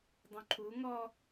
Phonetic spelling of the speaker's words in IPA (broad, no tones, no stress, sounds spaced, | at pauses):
dˤ ũ ǃʰ u ŋ ɔ